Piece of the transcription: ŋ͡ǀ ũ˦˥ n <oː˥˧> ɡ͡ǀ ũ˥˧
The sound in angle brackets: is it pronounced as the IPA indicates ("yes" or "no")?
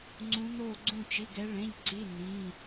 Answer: yes